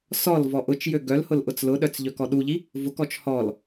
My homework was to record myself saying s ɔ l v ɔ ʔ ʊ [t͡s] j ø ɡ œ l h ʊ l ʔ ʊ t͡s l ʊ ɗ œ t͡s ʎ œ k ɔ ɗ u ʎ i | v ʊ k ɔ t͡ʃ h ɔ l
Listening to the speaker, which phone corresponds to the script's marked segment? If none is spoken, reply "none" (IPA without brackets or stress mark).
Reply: t͡ʃ